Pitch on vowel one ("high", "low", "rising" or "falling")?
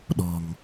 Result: low